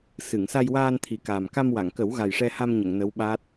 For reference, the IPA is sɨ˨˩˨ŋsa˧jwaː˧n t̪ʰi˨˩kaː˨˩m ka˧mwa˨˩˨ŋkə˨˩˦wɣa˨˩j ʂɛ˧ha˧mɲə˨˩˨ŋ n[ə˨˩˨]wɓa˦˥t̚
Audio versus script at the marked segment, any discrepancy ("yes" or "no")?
yes